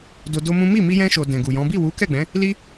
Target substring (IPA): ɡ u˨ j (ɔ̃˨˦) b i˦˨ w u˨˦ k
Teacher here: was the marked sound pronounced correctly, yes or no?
yes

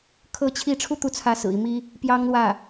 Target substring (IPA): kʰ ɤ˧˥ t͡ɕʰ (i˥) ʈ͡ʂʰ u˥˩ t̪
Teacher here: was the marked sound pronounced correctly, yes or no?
no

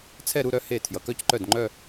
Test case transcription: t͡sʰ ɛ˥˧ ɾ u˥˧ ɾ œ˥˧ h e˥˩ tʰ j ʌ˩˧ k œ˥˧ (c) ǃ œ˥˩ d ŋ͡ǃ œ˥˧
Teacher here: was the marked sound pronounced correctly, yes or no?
yes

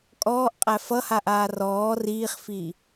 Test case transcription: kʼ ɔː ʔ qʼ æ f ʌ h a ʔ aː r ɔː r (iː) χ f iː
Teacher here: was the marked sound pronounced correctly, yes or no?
yes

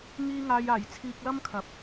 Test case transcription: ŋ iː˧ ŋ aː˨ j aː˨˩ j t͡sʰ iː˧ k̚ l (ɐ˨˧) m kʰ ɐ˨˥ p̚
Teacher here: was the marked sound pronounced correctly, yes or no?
no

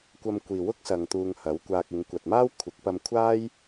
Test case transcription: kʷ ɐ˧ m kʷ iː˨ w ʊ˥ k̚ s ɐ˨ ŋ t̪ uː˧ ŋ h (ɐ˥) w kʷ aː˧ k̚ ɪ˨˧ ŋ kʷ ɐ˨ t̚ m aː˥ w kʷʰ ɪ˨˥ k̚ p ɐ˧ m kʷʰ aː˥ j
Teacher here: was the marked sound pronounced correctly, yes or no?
no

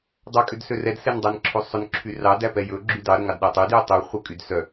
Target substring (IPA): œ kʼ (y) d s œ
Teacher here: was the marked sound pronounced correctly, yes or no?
yes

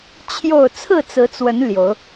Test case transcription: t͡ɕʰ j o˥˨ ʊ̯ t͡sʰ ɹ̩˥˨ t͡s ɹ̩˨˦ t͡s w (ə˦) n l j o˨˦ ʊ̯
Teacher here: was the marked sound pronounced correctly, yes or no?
no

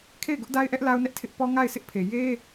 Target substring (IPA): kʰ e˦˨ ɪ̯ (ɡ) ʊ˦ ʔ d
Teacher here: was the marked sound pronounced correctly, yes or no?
yes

